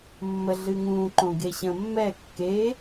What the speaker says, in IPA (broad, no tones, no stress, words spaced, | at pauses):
mːə ɮɨŋũ ǃõɡeɕə̃ mːɛ kːe